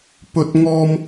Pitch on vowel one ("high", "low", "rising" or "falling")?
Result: high